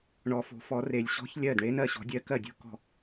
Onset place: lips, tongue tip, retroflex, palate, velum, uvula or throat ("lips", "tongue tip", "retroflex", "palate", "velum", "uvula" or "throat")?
retroflex